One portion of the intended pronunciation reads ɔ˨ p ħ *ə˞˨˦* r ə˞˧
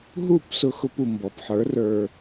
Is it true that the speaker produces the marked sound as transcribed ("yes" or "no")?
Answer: yes